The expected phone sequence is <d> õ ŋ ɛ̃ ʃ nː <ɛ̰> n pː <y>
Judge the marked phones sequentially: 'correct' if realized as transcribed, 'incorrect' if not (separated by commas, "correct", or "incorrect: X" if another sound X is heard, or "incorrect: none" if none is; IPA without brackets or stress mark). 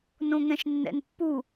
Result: incorrect: n, correct, incorrect: u